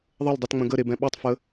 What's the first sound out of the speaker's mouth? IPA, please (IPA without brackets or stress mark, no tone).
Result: ðˤ